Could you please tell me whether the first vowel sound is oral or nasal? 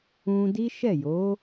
nasal